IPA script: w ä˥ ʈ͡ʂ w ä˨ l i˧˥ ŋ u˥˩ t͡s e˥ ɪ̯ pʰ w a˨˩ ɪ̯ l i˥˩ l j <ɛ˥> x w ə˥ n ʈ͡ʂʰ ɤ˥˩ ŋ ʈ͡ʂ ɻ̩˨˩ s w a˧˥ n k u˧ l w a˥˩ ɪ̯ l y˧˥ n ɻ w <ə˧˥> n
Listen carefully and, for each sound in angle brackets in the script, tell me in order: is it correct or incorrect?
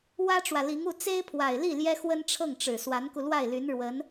correct, correct

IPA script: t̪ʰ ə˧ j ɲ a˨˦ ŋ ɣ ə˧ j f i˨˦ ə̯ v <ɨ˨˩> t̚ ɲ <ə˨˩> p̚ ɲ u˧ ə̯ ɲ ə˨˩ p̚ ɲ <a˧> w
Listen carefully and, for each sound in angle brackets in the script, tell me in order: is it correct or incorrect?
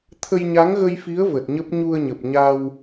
incorrect: ə˨˩, incorrect: ə˦˥, correct

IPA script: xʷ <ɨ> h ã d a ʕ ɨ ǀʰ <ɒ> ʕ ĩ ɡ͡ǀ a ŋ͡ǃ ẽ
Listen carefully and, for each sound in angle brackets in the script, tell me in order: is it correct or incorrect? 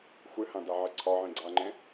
correct, correct

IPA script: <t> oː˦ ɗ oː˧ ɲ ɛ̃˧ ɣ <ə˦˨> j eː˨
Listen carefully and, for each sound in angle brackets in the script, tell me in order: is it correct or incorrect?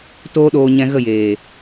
correct, correct

